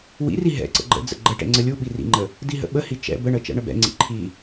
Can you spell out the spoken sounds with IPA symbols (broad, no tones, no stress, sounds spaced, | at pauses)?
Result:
w ḭ r i ɦ ɛ̰ ǀ ə̰ ɡ͡ǃ ə̰ d͡z ə̰ ɡ͡ǃ ə ʈ ɛ̰ ŋ͡ǀ ə lʲ u ɓ i r ḭ ŋ͡ǃ ə | d i ɦ ə̰ ɓ ə h i t͡ʃ ɛ̰ b ə ɳ ə t͡ʃ ɛ̰ ɳ ə b ɛ̰ ŋ͡ǀ ḭ ǃʰ i